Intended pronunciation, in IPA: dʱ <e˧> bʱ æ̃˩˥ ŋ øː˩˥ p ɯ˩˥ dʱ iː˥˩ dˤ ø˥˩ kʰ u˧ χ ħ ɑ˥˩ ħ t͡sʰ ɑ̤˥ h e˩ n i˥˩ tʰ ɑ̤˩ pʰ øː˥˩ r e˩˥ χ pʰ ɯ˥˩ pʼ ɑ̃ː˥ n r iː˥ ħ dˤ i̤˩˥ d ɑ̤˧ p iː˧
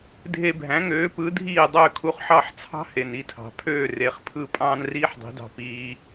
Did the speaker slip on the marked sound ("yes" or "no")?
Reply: no